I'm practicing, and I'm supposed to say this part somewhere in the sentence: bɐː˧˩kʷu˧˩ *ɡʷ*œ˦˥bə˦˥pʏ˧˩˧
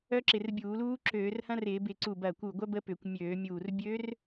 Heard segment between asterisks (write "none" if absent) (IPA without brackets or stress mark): ɡʷ